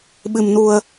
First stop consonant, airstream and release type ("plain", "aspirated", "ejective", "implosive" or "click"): implosive